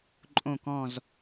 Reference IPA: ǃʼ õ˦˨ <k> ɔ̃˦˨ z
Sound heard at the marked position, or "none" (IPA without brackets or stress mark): k